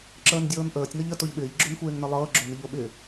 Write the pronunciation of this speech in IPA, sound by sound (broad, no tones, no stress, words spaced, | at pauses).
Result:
ǁəːndʲɤːnʔəːtʲ nɤʎə toʎɓɪːʎ ɡ͡ǁonxʷeːŋnəlˠɤː ɡ͡ǁonɪʎoɓɪ